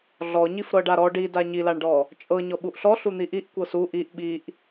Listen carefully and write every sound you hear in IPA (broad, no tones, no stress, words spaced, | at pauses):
ɮɔɲif ɾɤɖaɾɔ ɖida ɲilaɳɖɔ | t͡ʃʼɤ ɲɔɓuʔɬɔ ɬun̪iʔiʔ kʷɤsu ʔiʔ ɓiʔ